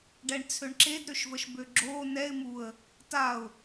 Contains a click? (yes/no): yes